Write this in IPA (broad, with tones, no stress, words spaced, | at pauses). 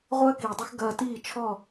ʁʷɐː˥kiː˩dˤɐ˥x ɡɐː˧tiː˥˩t͡ʃʰɔ˥˩